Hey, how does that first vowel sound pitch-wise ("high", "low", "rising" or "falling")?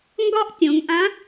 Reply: high